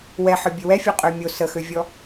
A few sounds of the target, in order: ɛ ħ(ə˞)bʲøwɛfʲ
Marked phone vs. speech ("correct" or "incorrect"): correct